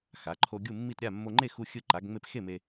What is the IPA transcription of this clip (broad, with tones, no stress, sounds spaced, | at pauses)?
x a˩˧ ǃʰ o˧ ɡʲ u˥˨ mː i˥˨ t ɾʲ a˥˨ mː o˧ ŋ͡ǃ e˥˨ x u˧ xʲ ɯ˧ ǃ a˩˧ ɡ ŋ͡m e˧ p x e˥˨ m e˧